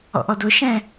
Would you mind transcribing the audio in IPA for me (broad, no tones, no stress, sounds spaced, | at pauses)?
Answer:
ɔ̰ ʔ ɔ d ʊ ʃ ɛ̃